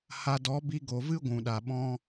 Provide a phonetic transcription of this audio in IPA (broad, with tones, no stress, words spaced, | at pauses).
ha˧ dɔ˨˦ bi˧ɡo˨vɨ˦ ɡʷũ˨ɗa˨ɓɔ̃˦